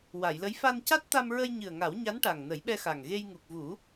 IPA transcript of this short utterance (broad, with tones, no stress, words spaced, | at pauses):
wa˨˩˨jlə˧˥j fa˧nca˦˥t̚ t̪a˧mɹə˧jɲɨ˨˩ə̯ ŋa˨˩˦wɲa˧˥n ʈa˨˩ŋnə˨˩˦jɓɛ˧xa˨˩ŋ ɣe˧jŋu˨˩k̚vu˨˩˦